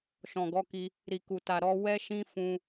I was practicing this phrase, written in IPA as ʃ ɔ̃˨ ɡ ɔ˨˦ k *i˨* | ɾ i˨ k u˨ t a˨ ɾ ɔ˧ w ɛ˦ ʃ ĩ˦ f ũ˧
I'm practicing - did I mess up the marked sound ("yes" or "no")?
yes